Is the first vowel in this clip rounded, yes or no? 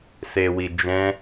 no